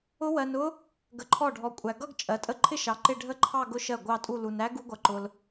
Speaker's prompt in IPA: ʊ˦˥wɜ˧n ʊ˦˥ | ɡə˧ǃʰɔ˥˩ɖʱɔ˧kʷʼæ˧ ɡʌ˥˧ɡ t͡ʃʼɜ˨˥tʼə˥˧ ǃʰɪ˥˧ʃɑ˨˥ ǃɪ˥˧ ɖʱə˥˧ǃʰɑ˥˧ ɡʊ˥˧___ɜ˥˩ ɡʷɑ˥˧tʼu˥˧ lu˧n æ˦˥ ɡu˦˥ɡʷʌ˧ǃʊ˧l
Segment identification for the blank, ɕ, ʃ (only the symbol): ʃ